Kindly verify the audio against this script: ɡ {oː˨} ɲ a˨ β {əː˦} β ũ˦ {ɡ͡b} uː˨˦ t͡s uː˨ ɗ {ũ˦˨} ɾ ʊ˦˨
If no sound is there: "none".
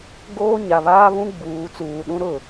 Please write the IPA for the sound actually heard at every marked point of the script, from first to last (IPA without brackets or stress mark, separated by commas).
oː˦, aː˦, ɡ͡b, ũ˦